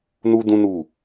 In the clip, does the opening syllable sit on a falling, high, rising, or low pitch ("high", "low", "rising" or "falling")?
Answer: high